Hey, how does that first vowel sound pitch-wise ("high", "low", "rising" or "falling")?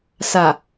low